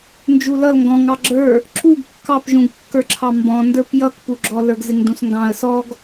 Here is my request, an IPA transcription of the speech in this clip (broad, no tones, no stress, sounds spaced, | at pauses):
n d͡ʒ u l ʌ l ŋ ɡ ɔ̃ ŋ ɑ ɡ͡ǁ ə˞ | ǁ u ɡ kː ɑ p ʒ ũ ɡ kː ə˞ ǁʰ ɑ m b ɔ̃ n d ə˞ p j ʌ k p u ɡ͡ǁ ɔ l ə˞ ɡ z ɪ ŋ d ũ s ŋ ɡ ɑ̃ ə̯ s ɔ ɡ